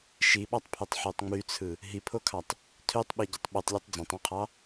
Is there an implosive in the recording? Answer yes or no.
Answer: yes